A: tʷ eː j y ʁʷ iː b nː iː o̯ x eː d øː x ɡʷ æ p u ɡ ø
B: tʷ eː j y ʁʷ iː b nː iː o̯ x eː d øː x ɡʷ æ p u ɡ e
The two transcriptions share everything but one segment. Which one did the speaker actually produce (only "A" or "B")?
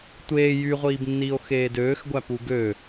A